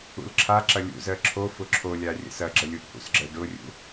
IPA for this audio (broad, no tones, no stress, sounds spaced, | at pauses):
ṵ l ǁʰ a ǁ ɐ lʲ ṵ z ɜ ǁʰ o f ʊ ǁʰ o lʲ a rʲ ə̰ s ɐ ɡ͡ǁ ə lʲ u ʔ h ṵ s ɡ͡ǁ ɜ ɖ ʊ rʲ ṵ